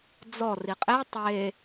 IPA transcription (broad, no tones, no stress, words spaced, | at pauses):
d͡zɔ riqʼe tˤe